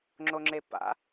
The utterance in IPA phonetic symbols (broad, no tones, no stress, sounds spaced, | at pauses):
ŋ͡ǁ o ŋ͡ǁ e p a̰